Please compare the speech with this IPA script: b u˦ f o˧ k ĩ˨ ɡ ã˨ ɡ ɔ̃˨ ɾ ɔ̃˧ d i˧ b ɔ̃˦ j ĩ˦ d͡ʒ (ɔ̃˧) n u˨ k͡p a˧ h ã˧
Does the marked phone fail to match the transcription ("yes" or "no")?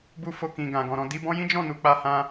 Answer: yes